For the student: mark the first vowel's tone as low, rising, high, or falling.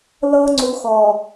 high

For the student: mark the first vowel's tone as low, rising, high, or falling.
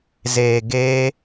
low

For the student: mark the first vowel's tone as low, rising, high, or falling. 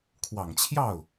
low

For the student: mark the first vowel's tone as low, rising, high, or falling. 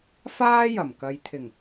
high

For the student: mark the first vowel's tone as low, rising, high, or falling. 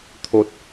high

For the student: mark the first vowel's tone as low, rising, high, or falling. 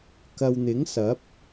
low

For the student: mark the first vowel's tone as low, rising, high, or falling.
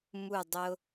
falling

